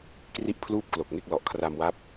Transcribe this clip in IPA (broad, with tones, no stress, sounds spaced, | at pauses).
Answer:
k r i˥˩ ʔ pʰ l uː˥˩ p̚ k l o˨˩ k̚ ŋ e˥˩ k̚ l ɔ˨˩ ʔ kʰ r a˧ m w a˦˥ p̚